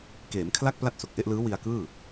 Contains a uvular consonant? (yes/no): no